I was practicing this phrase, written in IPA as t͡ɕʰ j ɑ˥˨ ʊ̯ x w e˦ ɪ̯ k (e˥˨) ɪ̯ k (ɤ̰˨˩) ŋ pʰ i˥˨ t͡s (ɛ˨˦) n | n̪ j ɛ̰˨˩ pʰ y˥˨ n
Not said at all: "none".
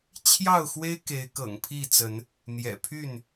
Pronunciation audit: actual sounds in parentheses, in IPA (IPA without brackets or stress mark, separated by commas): e˨˦, ɤ̰˨˩, ə˨˦